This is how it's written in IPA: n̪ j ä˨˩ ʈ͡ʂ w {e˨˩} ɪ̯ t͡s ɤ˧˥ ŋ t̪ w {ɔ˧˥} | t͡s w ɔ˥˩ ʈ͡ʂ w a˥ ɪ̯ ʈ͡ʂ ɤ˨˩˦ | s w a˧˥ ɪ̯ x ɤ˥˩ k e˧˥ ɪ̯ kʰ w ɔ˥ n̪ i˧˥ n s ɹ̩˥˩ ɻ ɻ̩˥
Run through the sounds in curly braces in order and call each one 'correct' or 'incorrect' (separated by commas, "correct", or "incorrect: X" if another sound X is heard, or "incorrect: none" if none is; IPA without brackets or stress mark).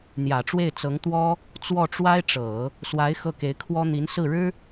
incorrect: e˥˩, incorrect: ɔ˥